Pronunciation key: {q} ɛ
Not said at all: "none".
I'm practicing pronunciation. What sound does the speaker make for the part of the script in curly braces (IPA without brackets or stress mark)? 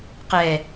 q